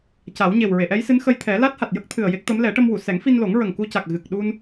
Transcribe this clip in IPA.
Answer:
c a˨˩˦ w ɲ e˨˩ w ɹ e˨˩˨ ʔ ɛ˧˥ j s ɨ˧˥ n x ə˧ j t̪ʰ ɛ˨˩˦ l a˦˥ t̚ h a˨˩ t̚ j ə˦˥ k̚ t̪ʰ ɨ˨˩ ə̯ j e˦˥ k̚ t̪ ə˧˥ m l ɛ˨˩˦ ʈ ə˧ m w u˨˩˨ s ɛ˨˩˦ ŋ f i˧ n l o˨˩˦ ŋ ɹ ə˨˩ ŋ k u˧ c a˨˩ k̚ ɣ ɨ˨˩ k̚ ɗ u˧ n

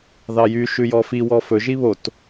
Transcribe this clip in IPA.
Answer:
ð ɑ j y ʃ ʉ j ɔ f i w ɔ f ɵ ʒ i β o t

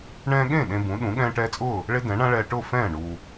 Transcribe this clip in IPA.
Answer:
ɳ ɛ̃ː˧ ɠ ẽ˥˩ ɗ ẽ˧ b ũ˩˥ ɗ ũ˩˥ ɠ ɛ̃ː˧ ʈ ɛː˧ t͡sʼ ʊː˥˩ | ɭ e˥ d ɛ̃˩˥ ɳ ã˥ ɭ ɛː˧ ʈ ʊː˥˩ f ɛ̃ː˥˩ ɳ u˩

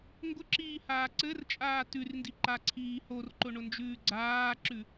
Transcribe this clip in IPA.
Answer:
ŋ ɡ ʊ ǁ iː h aː ǀ ɘ r t͡ʃʼ aː t ʉ r n d i ǃ a ǀʰ iː h o r ǃ ʊ ɳ ʊ n d͡ʒ ʉː ɡ͡ǀ aː ǁ ʉ

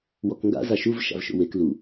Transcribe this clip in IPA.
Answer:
w ɔ k ŋ ɡ a̰ z a ʃ u v ʃ a̰ v ʃ o̰ w e k l u

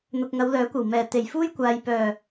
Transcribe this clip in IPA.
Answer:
n̪ ʊ˨ k̚ ŋ ɐ˨˧ w l œː˨˥ kʷ ɐ˨˩ w m ɛː˨˩ t̪ e˨˩ j f uː˥ j kʷ aː˨ j p œː˨˩

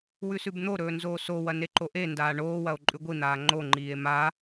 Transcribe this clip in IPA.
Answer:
w ʉ s ʉ b n̪ o ɾ ɵː n z oː s o w ɐ n e ǃ o ʔ e n d aː ɳ oː w ɐ o̯ ǃʼ ʉ ɡʷ i n̪ aː ŋ͡ǃ o ŋ͡ǃ iː e̯ m a

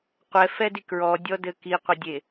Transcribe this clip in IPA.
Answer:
qʷ ɛ f ɛ d i k ɹ ɔ dʲ ɔ d ɘ k i qʷ ɘ dʲ e

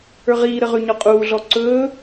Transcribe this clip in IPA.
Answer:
ə˞ ʁ iː ɾ ə ʁ ʉ ɲ ɔ qʼ uː ɮ ɔ ǀ ɵː

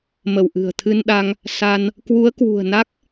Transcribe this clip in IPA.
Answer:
m ə˧˩ w ʔ ɨ̤˨˩ ə̯ t̪ʰ ɨ˧ n ɗ a˧ ŋ | s a˧ n | k w u˨˦ ə̯ k w ṳ˨˩ ə̯ n a˦˥ k̚

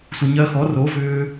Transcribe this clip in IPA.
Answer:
sʷ ə˨ ɲ ɜ˧ x ɔ˨˦ r o˨˦ v ʏː˧

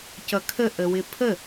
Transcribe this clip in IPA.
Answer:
c ʌ kʰ ə ʔ ə w ɪ pʰ ə

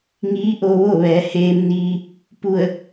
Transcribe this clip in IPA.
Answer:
ŋ iː˧˥ ʔ o˧ ʋ o˥˨ ʋ ɛː˩˧ h eː˧ m n iː˧ | p u˧˩ ə̯

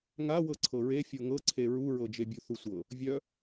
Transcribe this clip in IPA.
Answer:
ŋ a w ɤ ǀʰ ɤ ɹ e fʲ ɤ ŋ ɤ ǀʰ e ɹ u ɹ ɤ d͡ʒ e bʲ u θ u sʷ ɤ | vʲ œ

